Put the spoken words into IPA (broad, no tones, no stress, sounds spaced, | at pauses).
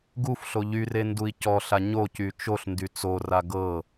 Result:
ɡ u f ɬ o ʎ y r e n d u i̯ c ɔ ɬ a ɲ o c y t͡ʃ o ɬ n d y t͡s o r a ɡ ɤ